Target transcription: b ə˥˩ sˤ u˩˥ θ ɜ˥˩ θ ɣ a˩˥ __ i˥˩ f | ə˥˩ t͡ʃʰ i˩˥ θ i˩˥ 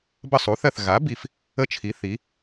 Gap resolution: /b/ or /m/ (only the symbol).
b